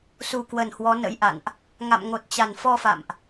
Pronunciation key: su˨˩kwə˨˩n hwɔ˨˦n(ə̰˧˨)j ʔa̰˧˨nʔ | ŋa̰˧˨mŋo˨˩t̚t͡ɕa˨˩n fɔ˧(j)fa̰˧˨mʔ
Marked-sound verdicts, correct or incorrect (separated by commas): incorrect, incorrect